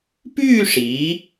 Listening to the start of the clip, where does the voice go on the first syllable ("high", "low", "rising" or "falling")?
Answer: falling